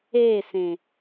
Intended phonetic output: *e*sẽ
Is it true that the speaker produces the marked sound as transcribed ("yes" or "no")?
yes